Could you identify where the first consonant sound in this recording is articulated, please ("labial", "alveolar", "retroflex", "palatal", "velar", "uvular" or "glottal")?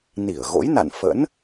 alveolar